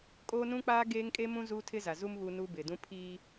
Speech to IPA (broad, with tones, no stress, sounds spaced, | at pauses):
kʼ oː˦ n ũ˦ k͡p aː˦ ɡ eː˦ ŋ kʼ e˦ m ũ˦ z uː˦ tʰ ɪ˦ z a˨ z u˦ m β u˦ n u˦ b ɪ˨ d ũ˦ pʰ i˦